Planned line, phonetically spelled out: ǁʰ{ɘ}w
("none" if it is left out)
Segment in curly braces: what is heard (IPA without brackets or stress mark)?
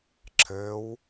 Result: ɘ